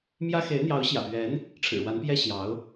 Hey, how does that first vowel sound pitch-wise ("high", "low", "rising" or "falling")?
high